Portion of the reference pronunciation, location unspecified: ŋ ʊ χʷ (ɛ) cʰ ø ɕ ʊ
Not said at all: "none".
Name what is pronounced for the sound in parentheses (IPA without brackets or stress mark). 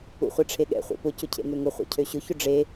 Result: ɛ̰